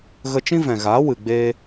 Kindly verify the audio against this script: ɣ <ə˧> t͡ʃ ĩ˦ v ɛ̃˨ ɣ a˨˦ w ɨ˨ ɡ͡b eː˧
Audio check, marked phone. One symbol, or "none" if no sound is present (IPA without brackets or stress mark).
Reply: ə˧